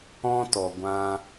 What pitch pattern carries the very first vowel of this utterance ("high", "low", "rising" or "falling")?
high